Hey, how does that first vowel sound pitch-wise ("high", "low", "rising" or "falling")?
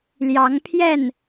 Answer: rising